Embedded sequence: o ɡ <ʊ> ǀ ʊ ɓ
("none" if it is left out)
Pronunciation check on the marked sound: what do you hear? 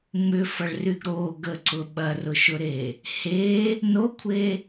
ə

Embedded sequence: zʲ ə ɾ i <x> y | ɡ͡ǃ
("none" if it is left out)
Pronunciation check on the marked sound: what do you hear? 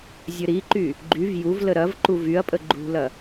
ǃ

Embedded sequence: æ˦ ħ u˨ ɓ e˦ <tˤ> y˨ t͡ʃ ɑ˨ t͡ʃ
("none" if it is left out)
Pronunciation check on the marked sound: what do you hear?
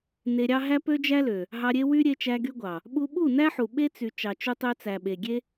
t͡s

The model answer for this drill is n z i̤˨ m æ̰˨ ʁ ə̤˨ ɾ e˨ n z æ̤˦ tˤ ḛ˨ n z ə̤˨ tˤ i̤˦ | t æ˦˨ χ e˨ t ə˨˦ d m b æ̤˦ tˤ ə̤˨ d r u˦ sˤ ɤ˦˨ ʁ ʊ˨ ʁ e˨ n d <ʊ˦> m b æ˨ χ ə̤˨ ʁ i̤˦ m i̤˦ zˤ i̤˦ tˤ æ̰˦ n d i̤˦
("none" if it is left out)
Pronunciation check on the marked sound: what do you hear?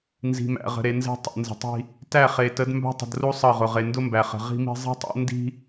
ʊ˦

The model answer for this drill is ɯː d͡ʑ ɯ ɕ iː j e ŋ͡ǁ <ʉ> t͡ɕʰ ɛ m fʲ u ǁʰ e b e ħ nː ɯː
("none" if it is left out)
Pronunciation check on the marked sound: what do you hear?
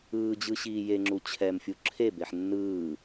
u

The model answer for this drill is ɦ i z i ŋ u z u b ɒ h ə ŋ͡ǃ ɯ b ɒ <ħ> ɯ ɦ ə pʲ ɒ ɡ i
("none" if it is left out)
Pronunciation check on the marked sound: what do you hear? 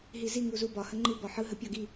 ħ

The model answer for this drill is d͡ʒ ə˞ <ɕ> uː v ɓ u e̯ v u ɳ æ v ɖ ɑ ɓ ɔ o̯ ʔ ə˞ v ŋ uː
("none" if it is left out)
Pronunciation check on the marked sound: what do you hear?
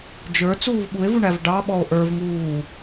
t͡s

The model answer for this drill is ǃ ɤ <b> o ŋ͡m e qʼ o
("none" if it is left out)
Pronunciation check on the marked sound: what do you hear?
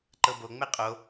b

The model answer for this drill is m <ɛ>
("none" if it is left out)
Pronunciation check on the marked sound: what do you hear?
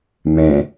ɛ̃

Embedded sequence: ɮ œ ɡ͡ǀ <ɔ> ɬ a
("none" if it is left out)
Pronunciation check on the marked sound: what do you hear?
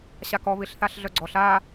ɔ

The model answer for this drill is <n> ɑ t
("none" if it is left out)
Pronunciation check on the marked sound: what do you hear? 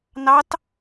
n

